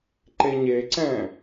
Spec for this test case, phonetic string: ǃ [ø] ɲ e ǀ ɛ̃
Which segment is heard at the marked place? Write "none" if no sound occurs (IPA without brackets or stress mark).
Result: e